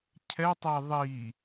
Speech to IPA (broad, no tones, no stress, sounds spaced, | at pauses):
cʰ ɛ tˤ e ðˤ i